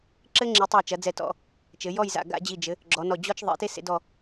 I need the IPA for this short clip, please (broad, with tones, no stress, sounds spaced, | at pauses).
ǁ ɘ˥ ŋ͡ǁ i˩˧ tˤ ɐ˧˩ j t͡ʃ ɐ˩˧ d͡z ɛ˧˩ t ɔ̰˧˩ | t͡ʃ ɘ˩˧ j ɔ˥˧ j z a̰˧˩ ɡ a̰˥˧ d͡ʑ i˧˩ d͡ʒ ɘ˩˧ | ɡ͡ǁ ɔ˩˧ n ɔ˧˩ d͡ʑ ɔ˥ t͡ʃ ðˤ ḛ˩˧ t e˥ s ḛ˧ d ɔ˧˩